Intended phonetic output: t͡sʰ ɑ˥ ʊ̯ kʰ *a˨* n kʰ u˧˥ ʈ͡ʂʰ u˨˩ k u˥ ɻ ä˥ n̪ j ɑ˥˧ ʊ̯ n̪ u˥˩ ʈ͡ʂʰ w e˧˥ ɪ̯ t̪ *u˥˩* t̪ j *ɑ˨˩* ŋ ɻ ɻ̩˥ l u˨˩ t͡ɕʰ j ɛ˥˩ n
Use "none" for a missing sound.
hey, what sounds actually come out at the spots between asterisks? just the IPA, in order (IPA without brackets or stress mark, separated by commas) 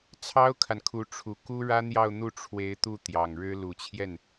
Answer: a˨, u˥˩, ɑ˨˩